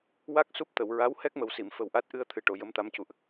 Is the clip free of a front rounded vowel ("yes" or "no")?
yes